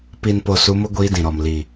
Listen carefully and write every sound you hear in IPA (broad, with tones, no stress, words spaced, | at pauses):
pi˨n po˨su˨˦mʊ˦ ɡʷiː˦dĩ˨ɾɔ˨m li˨